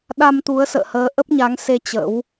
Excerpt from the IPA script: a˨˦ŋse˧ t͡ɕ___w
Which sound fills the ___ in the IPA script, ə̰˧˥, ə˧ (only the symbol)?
ə̰˧˥